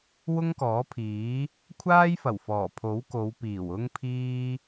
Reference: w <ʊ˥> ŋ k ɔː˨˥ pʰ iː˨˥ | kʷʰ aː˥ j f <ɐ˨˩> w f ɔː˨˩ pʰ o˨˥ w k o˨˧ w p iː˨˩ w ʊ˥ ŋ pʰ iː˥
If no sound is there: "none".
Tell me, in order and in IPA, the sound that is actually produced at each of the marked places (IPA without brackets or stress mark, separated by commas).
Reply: ʊ˥, ɐ˨˩